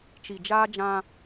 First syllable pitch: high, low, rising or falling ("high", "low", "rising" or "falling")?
low